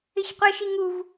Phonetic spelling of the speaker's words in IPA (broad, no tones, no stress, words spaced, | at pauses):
ɪçqʷɪʃi ŋuv